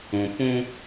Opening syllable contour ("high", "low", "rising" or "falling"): low